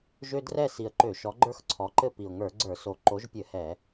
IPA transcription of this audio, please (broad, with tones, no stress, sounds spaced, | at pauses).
ʒ ø˦ d r ɛ˥˨ s i˨˩ ə̯ ǃ ø˧˩˧ ʃ ɔ˨˦ ɡ͡ǃ ə˞˦ x ǀʰ ɔ˨˦ ǃ ɘ˥˨ p i˨˩ ʊ̯ ŋ ə˞˧˩˧ ɡ͡ǀ ə˞˧˩˧ s o˨˩ ǃ o˨˦ ʒ pʲ ɘ˧˩˧ h ɛ˧˩˧